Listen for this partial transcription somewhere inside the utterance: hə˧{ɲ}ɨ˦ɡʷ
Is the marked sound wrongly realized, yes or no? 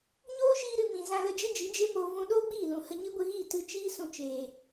no